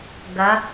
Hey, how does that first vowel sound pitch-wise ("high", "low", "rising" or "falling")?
rising